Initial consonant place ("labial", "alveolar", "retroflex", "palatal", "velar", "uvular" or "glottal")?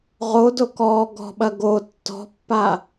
uvular